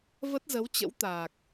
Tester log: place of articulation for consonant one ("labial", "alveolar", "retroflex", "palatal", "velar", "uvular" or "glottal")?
labial